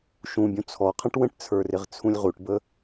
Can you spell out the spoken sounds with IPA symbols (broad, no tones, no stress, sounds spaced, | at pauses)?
ʃ ũ bʲ ũ t͡sʰ ɔ qʰ ə̃ ʈ w ə̃ ʈ t͡sʰ ə˞ r ɪ ʁ t͡sʰ ũ lʲ ʁ u ʈ b ə